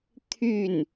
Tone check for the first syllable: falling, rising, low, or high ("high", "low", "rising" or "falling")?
falling